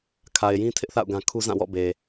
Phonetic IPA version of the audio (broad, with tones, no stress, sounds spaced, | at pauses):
kʰ a˨ ɪ̯ j ĩ˦ tʰ ɪ˦ ʔ θ a̰˦˨ ʊ̯ ɡ ã˦ kʰ u˦ z ã˦˨ w ɔ̰˦˨ b e˨